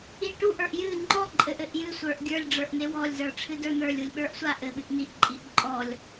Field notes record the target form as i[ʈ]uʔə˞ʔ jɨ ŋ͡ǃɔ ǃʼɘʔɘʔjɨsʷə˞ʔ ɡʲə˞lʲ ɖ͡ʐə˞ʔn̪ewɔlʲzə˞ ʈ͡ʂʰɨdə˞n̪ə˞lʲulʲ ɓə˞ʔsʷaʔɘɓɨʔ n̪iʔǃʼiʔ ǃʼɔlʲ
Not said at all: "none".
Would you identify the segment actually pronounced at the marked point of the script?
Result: ʈ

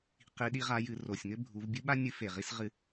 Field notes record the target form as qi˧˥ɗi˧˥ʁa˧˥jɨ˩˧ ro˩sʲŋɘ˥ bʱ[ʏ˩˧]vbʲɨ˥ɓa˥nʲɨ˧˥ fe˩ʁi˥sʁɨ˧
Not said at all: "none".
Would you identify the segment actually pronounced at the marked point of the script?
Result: u˩˧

